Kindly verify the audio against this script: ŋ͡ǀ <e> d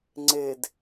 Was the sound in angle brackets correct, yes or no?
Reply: yes